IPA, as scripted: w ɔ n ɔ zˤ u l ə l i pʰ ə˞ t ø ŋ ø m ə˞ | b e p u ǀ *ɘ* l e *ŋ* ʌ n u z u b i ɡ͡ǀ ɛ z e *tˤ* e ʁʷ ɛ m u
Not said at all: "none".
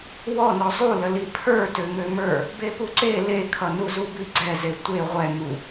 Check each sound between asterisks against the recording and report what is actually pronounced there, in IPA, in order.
e, kʰ, tʷ

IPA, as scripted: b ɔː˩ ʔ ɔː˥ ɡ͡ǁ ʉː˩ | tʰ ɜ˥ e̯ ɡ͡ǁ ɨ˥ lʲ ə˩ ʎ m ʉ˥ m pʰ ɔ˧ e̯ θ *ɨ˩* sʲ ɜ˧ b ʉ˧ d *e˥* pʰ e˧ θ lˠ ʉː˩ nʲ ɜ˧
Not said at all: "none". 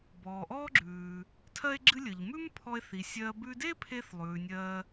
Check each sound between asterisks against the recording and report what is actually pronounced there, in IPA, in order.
i˩, e˥

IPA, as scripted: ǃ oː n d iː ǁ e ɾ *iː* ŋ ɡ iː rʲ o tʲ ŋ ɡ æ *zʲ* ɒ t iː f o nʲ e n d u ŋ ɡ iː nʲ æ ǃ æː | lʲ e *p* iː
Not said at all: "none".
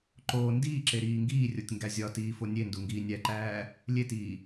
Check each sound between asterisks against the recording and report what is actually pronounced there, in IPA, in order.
iː, zʲ, t

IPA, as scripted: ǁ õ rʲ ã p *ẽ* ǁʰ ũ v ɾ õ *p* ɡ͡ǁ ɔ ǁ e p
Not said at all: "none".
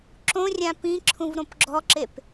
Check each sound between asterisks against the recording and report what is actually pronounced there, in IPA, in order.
ĩ, p

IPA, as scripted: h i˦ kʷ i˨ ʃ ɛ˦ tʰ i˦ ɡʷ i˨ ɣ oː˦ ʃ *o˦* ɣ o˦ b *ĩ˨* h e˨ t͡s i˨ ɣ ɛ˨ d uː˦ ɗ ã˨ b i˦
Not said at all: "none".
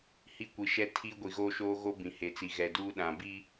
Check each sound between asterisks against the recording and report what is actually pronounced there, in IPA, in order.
oː˦, ĩ˨

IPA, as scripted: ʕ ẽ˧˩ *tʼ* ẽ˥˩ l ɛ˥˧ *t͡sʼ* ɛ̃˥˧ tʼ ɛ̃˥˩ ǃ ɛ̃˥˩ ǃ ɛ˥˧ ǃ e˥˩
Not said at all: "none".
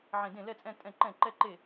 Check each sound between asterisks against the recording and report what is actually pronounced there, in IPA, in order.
d, t͡sʼ

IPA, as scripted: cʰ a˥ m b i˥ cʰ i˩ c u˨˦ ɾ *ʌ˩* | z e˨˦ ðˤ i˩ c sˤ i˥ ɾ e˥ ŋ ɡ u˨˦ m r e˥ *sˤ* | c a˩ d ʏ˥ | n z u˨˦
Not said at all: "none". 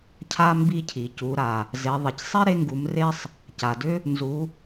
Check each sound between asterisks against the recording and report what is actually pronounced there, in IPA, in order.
a˩, sˤ

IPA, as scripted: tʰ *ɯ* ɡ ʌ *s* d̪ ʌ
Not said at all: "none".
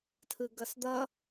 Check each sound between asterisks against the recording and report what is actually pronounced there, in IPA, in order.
ɯ, s

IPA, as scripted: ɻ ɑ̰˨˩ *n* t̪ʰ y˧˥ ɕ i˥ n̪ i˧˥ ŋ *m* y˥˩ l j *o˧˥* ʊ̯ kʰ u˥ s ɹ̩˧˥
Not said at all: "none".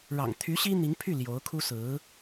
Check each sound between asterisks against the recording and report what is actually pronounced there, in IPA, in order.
ŋ, pʰ, o˧˥

